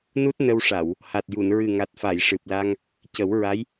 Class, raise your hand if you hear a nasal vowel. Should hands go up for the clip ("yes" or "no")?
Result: no